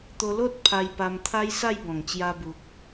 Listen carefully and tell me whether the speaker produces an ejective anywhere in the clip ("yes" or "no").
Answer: no